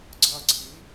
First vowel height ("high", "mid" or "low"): low